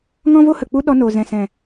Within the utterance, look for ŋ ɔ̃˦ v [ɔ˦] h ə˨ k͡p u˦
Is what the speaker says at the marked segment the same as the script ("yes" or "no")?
no